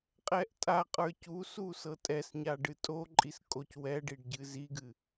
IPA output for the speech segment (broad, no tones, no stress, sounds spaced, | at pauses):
qʼ ɛ ʔ tʼ a qʼ ə˞ c u s u s ɤ tʼ ɛ s ɲ a ɖ ɨ tʼ o ǃʼ i s kʼ o c w ɛ ɖ i ɖ ɟ ɨ z i ɡ ɨ